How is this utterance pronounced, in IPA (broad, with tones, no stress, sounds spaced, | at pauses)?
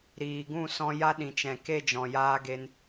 ɾ iː˨ ɡ ũ˦˨ s ɔ̃˧ j a˦ ɗ ĩ˨ t͡ʃ ɛ̃˨ k e˦˨ d͡ʒ ɔ̃˨ j aː˦ ɡ e˧ n